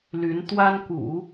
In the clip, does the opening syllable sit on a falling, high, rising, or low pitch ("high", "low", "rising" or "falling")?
rising